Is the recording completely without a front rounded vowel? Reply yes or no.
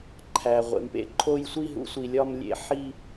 yes